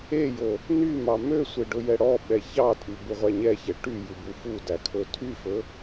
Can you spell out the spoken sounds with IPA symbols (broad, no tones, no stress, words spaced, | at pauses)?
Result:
ejo | nymɑ møsʷe ɖɵjɛɽɔɓɛ çɑtʼy buʁʷæɲɛçɛ ʈy jʉbufudæ kʰɵtʰyfɵ